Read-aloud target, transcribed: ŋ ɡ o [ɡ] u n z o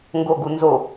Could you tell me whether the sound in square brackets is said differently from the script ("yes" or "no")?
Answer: no